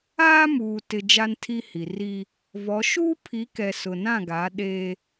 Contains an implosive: yes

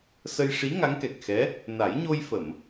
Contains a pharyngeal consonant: no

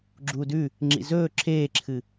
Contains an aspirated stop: yes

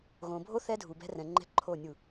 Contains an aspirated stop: yes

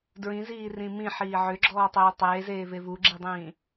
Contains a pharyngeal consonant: yes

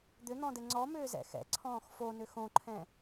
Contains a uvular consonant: no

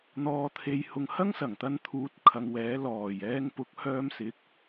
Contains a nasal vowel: no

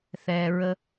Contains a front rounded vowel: no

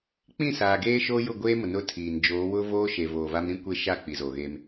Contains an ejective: no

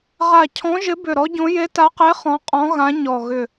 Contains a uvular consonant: yes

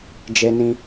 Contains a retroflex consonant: no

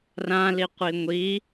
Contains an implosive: no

